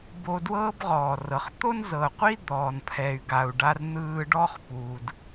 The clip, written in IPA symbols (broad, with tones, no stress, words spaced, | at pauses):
bo˧dwɤː˥bʁɔː˩rɤ˩χ t̪o˥nzɤ˩ qʷi˥ d̪ɔː˩npʰɛ˩y̯ɡa˩u̯ ɖa˧rn̪ɯː˧ɖɔ˥χ pu˩d